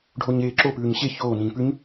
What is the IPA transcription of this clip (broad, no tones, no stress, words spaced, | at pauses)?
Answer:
ɖʱoɲeːǁo pʉːɲɕe çoː nĩːpʉɲ